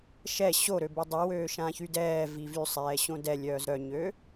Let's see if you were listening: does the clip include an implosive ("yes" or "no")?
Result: no